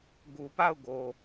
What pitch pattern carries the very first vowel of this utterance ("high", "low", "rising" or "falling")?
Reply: low